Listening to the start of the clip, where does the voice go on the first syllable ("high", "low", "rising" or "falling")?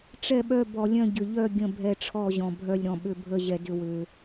falling